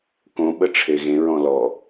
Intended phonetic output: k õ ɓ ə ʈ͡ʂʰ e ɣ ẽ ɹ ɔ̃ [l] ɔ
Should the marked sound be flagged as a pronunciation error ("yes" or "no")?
no